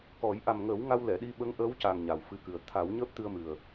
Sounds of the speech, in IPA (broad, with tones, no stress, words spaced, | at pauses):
kɔ˨˩˦j ʔa˨˩mŋəː˨˩˦w ŋa˧wlɛ˨˩˨ɗi˧ ɓə˧˥ŋ ʔəː˧˥wca˨˩ŋ ɲa˨˩wfɨ˧kɨ˨˩ə̯ t̪ʰa˨˩˦wɲəː˦˥p̚ t̪ɨ˧ə̯mɨ˨˩ə̯